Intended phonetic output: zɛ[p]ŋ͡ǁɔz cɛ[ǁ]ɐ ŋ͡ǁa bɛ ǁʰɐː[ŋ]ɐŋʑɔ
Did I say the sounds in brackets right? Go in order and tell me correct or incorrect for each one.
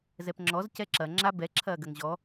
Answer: correct, correct, incorrect

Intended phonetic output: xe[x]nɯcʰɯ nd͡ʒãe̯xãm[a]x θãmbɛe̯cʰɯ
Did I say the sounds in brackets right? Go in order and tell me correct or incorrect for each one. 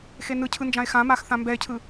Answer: incorrect, correct

